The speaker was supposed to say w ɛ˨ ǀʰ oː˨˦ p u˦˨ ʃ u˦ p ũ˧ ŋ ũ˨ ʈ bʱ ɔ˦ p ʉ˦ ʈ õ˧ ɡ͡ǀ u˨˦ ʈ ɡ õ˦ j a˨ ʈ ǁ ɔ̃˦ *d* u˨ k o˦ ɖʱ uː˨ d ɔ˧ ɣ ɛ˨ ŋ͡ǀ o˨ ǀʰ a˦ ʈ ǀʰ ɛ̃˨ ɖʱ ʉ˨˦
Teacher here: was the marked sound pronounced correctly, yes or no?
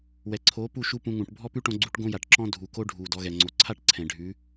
no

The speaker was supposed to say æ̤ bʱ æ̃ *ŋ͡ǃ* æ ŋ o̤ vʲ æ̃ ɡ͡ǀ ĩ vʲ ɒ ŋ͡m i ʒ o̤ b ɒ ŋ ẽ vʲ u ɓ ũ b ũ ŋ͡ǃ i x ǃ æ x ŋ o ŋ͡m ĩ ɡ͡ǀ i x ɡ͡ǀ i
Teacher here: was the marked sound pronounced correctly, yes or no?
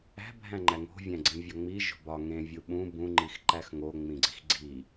yes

